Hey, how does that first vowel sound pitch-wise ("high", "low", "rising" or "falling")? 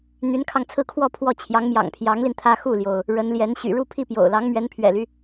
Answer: rising